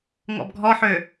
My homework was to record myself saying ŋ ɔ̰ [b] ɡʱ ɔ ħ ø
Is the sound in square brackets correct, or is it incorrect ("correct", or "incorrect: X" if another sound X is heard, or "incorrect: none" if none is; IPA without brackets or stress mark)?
correct